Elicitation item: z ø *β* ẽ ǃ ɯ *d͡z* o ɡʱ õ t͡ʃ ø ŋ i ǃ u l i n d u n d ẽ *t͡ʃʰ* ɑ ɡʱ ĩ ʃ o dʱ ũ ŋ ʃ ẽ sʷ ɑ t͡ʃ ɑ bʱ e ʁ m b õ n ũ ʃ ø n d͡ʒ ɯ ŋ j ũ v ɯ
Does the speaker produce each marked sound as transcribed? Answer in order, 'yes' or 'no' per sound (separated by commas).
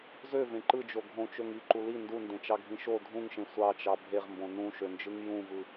no, no, no